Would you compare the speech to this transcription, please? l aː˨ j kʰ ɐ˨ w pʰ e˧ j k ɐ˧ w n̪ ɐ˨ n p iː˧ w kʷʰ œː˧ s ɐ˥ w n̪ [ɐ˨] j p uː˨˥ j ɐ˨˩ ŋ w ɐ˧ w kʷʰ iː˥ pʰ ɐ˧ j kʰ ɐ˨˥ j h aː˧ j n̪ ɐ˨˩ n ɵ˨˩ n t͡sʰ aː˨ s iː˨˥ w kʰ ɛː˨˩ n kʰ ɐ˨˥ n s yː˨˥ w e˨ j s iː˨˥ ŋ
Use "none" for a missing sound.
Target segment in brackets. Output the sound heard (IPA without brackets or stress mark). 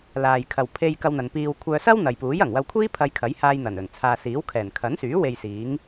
ɐ˨